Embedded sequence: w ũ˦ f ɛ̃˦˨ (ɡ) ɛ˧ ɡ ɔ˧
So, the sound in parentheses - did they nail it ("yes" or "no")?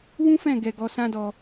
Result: yes